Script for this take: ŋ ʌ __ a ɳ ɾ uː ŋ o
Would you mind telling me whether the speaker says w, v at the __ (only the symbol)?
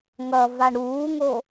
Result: v